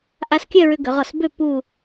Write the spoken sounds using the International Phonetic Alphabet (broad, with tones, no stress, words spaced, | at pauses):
ʔa˧skʲœ˥˧ɹʏ˧ ɡʏ˩˧ʁɔ˧˩sbø˥˧ pu˥˧